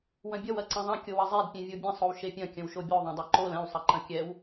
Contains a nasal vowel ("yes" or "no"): yes